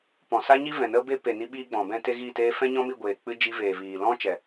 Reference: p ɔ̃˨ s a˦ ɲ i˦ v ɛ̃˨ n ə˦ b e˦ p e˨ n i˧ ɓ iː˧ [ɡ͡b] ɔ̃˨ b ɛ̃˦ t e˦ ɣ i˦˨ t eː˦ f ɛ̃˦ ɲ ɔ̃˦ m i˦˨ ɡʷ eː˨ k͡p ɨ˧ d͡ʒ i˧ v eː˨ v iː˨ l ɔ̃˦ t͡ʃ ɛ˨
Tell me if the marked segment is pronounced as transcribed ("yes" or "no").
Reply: yes